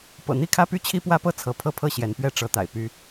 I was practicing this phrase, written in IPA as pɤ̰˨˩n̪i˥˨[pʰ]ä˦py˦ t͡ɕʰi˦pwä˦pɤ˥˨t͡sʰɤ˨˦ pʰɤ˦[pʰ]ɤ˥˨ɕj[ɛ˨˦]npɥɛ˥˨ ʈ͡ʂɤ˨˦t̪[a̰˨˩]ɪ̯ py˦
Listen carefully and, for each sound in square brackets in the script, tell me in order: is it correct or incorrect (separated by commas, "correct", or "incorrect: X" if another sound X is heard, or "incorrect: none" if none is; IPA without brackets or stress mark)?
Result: incorrect: kʰ, correct, correct, correct